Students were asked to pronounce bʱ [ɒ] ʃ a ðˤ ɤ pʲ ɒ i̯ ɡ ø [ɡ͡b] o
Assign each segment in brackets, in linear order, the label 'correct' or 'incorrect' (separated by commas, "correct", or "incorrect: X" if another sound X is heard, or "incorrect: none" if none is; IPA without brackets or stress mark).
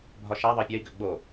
correct, correct